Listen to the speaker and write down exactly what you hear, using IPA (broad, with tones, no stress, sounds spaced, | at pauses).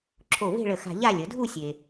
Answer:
ǁʰ o˧˩ v e̤˥˧ ɭ ə˧˩ x a̤˧ ʎ a˥˧ lʲ ə˩˧ dʱ u˥˧ sʲ e˧